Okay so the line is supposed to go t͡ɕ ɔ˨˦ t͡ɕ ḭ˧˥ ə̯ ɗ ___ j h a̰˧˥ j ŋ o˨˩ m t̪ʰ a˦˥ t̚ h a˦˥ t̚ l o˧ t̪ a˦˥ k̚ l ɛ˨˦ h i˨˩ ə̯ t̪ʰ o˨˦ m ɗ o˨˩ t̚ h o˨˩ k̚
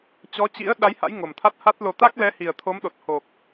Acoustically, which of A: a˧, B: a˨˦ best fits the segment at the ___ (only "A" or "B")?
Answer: B